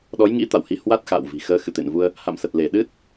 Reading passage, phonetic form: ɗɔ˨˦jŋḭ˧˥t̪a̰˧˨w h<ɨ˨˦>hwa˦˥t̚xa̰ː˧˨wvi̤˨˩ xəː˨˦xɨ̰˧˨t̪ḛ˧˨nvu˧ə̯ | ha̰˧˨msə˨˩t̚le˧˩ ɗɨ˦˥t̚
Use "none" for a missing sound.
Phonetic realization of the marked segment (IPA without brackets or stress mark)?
i˨˦